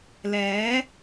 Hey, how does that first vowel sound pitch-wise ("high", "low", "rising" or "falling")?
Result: rising